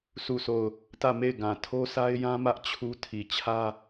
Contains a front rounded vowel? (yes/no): no